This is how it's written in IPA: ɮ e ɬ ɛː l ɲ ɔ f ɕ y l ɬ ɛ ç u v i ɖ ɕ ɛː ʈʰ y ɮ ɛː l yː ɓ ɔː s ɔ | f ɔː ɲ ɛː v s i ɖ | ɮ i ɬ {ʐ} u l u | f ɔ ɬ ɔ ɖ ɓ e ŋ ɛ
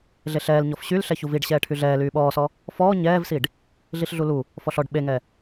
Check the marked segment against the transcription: incorrect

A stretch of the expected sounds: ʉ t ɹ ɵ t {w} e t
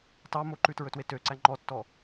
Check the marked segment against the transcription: correct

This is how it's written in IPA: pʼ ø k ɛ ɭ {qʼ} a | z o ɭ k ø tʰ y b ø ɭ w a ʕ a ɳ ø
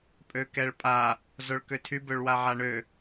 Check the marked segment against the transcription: incorrect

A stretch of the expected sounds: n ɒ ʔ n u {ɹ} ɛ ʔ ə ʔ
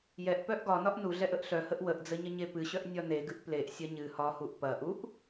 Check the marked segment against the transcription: incorrect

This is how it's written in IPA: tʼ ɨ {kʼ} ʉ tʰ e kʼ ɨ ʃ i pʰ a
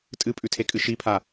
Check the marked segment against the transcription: incorrect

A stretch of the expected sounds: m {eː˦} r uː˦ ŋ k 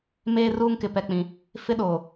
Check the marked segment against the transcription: correct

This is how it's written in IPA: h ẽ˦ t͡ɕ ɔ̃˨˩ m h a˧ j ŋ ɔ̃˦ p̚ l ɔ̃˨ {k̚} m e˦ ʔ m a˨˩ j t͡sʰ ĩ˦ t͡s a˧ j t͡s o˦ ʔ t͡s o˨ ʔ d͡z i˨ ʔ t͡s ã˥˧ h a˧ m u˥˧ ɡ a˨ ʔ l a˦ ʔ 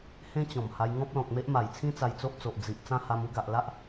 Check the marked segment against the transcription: correct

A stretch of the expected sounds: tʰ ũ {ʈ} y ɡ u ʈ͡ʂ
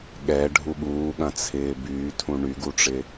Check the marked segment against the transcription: incorrect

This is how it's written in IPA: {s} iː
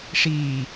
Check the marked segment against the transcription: incorrect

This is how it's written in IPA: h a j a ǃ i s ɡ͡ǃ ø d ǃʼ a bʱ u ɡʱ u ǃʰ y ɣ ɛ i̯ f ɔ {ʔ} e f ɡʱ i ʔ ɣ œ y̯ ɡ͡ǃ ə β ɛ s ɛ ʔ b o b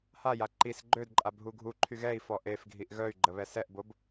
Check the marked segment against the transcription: correct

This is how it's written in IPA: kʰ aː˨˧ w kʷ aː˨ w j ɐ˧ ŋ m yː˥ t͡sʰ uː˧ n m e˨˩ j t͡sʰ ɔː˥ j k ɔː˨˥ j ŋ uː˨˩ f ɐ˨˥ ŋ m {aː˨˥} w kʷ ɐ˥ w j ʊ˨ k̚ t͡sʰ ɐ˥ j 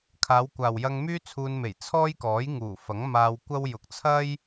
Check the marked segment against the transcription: incorrect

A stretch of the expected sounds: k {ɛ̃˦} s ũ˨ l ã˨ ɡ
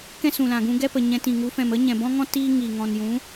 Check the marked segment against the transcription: correct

